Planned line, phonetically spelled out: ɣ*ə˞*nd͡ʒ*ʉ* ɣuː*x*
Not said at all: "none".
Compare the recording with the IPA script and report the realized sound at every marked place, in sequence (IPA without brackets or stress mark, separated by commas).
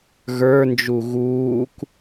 ə˞, u, k